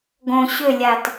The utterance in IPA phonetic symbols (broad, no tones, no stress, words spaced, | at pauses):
ɡõ ɕʏlʲat